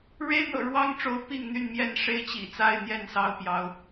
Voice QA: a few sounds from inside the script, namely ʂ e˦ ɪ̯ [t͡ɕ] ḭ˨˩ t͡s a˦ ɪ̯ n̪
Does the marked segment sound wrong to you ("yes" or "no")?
no